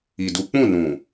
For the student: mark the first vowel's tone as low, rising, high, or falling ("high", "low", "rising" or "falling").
low